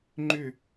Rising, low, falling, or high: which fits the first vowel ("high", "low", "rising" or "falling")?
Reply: falling